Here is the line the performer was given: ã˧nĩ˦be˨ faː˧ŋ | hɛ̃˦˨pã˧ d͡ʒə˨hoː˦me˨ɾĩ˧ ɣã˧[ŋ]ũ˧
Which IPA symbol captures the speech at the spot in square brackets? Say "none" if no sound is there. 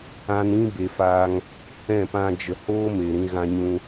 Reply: ɲ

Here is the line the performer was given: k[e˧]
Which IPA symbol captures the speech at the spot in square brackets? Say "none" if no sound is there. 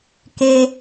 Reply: e˧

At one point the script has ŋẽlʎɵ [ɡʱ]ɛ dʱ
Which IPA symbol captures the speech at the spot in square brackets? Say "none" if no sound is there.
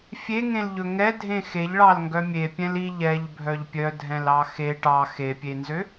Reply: ŋ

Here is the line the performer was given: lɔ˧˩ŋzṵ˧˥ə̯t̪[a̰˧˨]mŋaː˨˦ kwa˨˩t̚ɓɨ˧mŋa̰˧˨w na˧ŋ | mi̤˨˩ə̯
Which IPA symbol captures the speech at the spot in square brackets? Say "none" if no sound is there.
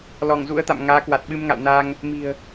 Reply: a̰˧˨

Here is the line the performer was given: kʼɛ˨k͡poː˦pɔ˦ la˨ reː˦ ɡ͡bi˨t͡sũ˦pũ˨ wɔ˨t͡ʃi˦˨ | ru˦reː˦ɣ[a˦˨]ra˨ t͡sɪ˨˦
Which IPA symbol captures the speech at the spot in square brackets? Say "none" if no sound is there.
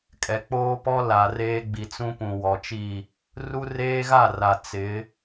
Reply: a˦˨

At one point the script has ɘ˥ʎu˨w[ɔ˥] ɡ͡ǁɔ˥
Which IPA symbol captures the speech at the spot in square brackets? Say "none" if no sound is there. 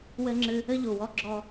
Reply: ɔ˥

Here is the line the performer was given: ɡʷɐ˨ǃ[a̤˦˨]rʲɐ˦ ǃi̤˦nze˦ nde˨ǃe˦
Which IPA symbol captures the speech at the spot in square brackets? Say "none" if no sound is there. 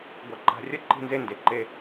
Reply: a̤˨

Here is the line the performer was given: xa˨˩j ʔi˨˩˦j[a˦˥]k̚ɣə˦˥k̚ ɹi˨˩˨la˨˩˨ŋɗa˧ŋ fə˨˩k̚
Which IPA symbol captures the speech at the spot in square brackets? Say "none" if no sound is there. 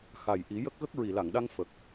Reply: ə˦˥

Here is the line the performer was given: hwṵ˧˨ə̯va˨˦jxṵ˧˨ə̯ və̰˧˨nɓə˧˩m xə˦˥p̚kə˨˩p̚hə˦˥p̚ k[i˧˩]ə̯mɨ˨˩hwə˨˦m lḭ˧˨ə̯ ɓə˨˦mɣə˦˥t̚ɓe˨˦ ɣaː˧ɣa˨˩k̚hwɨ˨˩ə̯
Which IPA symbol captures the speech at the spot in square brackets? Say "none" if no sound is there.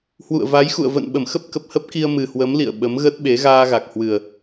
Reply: i˧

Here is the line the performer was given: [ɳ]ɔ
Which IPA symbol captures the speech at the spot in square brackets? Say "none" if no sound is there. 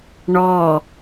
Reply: ɳ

